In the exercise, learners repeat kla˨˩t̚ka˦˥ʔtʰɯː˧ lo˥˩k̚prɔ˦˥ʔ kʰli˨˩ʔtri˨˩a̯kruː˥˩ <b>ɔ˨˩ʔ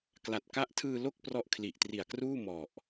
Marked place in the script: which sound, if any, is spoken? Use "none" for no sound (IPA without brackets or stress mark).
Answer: m